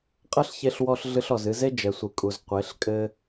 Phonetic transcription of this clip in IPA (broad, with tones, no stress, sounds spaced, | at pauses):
qʼ ɐ˦ ɬ ç e˧ ɬ w ɔ˧ ɬ ɮ ɨ˧ ɬ ɔ˨ z ɨ˧ z e˦ d͡ʒ ɛ˨ sʷ ɨ˨ kʼ u˨ z qʷ e˨˦ ɬ kʼ ɘ˦